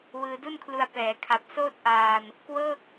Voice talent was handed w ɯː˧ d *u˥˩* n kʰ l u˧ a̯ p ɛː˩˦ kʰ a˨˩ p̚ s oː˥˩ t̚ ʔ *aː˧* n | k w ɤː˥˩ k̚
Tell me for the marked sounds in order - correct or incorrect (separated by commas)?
correct, correct